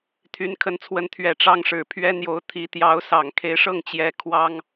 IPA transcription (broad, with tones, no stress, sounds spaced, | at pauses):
t̪ʰ y˧˥ n kʰ ə˧˥ n t͡sʰ w ə˧˥ n t̪ʰ ɥ ɛ˨˩ ʈ͡ʂ ɑ˥ ŋ ʂ ɻ̩˨˩ pʰ ɥ ɛ˥ n̪ j o˧˥ ʊ̯ t̪ʰ i˧˥ t̪ j ɑ˧˥ ʊ̯ s ɑ˨˩ ŋ kʰ e˧˥ ɪ̯ ʂ ɤ˥˩ ŋ t͡ɕ j ɛ˧˥ kʰ w ɑ˥ ŋ